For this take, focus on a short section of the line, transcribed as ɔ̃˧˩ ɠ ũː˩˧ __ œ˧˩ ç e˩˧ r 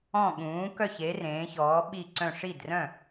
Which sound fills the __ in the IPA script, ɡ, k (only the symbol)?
k